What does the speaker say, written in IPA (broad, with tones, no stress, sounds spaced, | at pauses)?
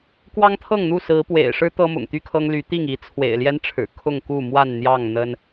k w ɑ˦ ŋ t̪ʰ ɤ˥˨ ŋ n̪ u˥˨ s ɹ̩˨˦ p w ḛ˨˩ ɪ̯ ʂ ɻ̩˦ t̪ ɤ˦ m ʊ̰˨˩ ŋ t̪ y˦ kʰ ɤ˦ ŋ l y˨˦ t̪ i˥˨ ŋ i˨˦ t͡sʰ w ḛ˨˩ ɪ̯ l j ɛ˦ n ʈ͡ʂʰ ɻ̩˨˩ kʰ ʊ˥˨ ŋ k u˥˨ m w a˥˨ n n̪ j ɑ˥˨ ŋ n̪ ə˦ n